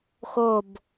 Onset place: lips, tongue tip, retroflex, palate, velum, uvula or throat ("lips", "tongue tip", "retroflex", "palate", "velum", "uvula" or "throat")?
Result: velum